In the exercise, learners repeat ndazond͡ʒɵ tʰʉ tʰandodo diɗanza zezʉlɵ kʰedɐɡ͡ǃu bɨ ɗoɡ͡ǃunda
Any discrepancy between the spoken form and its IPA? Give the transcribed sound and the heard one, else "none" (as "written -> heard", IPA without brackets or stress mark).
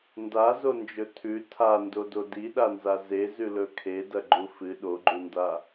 b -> f